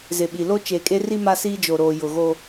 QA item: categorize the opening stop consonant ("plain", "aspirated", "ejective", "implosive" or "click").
implosive